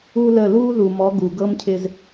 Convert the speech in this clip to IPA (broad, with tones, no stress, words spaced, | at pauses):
u˦lə˦˨ lu˦ ðu˨mɔ˨˦ ɡu˨ɡɤ˦mcʰɪ˦z